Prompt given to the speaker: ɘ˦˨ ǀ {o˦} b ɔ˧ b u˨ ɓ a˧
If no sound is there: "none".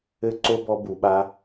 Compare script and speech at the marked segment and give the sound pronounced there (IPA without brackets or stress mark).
o˦